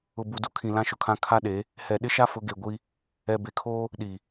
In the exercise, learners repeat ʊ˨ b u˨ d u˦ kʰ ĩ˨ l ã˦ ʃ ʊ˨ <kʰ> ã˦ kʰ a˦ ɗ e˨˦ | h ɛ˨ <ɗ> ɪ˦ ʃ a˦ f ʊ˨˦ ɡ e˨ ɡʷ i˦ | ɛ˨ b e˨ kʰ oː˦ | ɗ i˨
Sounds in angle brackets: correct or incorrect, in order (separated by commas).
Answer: correct, correct